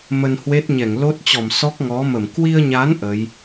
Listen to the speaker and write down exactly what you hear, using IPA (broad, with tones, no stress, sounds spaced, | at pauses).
m ə˧ n h w e˦˥ t̚ ɲ ɛ˧˩ ŋ l o˦˥ t̚ t͡ɕ ɔ˧˩ m s ɔ˦˥ k̚ ŋ ɔ˨˦ m ə˧˩ m k w i˧ ə̯ ɲ a˨˦ n ʔ ə˨˦ j